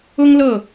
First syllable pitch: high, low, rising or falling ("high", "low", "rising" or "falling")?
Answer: high